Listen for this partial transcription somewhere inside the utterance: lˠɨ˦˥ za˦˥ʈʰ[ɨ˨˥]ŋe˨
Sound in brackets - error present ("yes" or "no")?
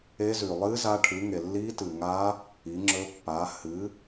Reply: no